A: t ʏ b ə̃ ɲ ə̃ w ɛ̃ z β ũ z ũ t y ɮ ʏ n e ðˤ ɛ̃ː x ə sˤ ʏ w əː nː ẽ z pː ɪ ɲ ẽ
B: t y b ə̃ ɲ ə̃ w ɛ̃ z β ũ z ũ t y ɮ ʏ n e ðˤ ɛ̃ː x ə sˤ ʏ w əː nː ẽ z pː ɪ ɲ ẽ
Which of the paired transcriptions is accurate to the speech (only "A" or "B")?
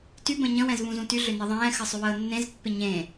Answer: B